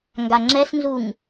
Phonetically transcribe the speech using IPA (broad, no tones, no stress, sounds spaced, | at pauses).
ŋ ɡ a ŋ͡ǁ ɛ s n z u ŋ